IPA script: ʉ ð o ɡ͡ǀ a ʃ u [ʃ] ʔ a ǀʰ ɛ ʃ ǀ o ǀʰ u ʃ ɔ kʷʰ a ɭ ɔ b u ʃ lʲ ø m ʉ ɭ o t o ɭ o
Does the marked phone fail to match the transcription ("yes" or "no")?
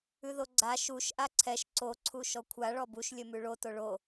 no